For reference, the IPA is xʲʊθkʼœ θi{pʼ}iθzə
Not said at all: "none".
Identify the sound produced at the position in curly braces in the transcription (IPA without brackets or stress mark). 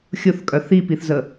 p